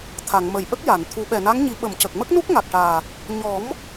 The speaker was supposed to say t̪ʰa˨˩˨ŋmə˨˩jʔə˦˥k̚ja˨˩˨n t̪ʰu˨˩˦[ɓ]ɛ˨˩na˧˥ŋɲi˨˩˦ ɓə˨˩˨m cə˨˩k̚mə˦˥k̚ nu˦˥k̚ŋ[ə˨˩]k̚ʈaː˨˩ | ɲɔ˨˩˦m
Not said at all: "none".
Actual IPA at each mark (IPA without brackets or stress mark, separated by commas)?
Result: ɓ, a˨˩